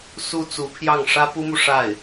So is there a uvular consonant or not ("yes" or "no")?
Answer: no